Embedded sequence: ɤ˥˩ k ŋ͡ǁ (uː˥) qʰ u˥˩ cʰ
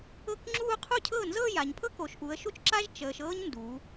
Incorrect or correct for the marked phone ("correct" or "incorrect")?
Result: incorrect